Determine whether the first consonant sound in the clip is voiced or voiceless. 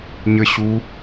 voiced